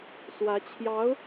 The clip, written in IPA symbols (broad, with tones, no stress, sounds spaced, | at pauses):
s w ä˧˥ t͡ɕʰ j ɑ˧˥ ʊ̯